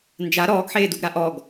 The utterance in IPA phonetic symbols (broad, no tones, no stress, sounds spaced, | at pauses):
n d͡ʒ a ɾ ɔː ɡ ħ eː d u ɡ ɾ a ʔ ɔ ɡ